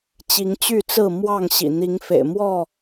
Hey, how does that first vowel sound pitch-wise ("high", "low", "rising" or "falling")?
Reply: rising